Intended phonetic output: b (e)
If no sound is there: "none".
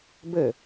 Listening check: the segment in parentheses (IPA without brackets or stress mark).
ɘ